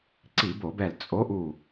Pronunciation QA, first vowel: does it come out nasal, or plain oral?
oral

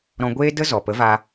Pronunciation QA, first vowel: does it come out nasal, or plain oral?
nasal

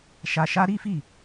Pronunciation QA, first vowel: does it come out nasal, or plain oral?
oral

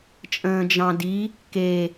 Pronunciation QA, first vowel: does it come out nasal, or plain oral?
nasal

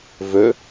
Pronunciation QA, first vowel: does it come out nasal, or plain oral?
oral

